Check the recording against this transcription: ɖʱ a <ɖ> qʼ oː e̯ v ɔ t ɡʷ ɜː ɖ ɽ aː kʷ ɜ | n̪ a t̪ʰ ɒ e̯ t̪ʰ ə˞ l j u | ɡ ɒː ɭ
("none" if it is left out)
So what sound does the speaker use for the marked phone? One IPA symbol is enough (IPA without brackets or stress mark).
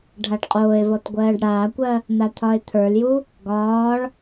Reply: ɖ